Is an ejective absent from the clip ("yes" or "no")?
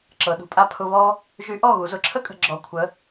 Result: no